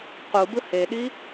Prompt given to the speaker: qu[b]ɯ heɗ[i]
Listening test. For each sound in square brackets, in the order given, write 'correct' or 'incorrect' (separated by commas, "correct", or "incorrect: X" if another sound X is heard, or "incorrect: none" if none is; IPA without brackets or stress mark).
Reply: correct, correct